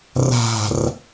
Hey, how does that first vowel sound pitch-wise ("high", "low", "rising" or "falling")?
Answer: low